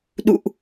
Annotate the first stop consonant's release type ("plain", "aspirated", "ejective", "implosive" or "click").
implosive